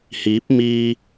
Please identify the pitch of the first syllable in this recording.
rising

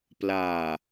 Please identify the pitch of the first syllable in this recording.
low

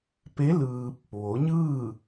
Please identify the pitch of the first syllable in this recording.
rising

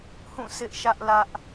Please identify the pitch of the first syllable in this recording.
falling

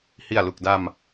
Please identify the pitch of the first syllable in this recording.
low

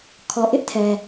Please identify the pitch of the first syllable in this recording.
low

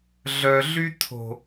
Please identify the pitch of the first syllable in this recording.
low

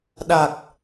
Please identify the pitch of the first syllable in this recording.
low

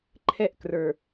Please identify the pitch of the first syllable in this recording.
high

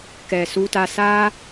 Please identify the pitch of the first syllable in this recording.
low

